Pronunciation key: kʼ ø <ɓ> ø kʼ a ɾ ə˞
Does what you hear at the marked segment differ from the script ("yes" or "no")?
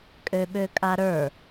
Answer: no